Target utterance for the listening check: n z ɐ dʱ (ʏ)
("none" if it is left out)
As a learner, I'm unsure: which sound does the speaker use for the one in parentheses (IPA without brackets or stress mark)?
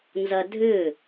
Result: ʏ